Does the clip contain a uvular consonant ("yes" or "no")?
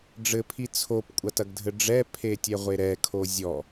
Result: yes